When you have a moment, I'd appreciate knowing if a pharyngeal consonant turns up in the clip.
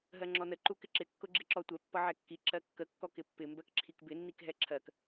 yes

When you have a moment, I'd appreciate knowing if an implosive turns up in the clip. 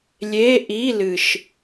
no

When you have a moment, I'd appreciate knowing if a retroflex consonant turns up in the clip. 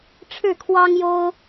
yes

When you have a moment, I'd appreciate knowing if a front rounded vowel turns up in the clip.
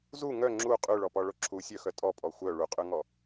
yes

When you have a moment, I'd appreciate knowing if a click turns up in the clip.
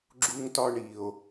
yes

